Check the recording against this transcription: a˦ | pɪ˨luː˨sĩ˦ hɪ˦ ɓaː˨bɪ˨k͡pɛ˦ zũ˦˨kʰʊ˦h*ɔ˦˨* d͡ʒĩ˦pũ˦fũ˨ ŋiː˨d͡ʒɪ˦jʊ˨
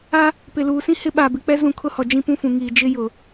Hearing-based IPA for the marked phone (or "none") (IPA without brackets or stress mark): ɔ˨